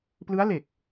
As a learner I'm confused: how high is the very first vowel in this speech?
high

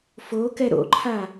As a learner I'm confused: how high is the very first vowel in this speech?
mid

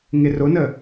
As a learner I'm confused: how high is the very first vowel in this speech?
high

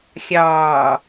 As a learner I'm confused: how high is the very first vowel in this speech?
low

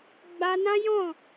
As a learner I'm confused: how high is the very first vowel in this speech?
low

